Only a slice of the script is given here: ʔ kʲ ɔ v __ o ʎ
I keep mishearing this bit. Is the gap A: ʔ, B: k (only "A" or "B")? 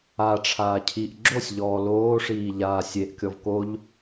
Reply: B